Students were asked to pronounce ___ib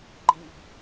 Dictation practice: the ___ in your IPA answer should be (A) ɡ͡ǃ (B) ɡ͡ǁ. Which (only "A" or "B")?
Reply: A